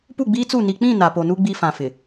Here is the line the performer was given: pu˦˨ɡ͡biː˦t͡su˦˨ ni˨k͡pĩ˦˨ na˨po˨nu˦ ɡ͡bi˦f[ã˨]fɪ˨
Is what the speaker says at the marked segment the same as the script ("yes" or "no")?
yes